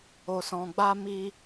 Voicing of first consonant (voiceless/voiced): voiceless